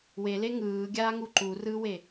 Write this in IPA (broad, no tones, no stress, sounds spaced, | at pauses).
w e l e ŋ ɯː ɡʲ aː ŋ u ǃ u r ɯː w e